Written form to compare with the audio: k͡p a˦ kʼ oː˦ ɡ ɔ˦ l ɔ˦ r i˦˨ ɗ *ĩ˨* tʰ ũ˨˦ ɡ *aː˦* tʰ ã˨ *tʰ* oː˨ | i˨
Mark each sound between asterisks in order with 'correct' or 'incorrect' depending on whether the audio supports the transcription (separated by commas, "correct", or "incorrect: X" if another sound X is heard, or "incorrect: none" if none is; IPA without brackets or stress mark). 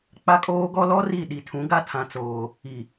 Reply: incorrect: i˨, incorrect: a˦, incorrect: t͡s